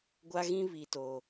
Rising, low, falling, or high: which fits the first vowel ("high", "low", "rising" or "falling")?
high